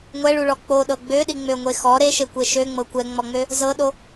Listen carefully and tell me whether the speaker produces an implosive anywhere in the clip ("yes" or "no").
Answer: yes